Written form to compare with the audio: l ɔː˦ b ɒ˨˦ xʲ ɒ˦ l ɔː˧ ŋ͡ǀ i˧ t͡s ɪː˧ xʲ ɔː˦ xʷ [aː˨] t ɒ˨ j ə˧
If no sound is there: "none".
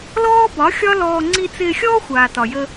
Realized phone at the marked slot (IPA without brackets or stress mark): aː˨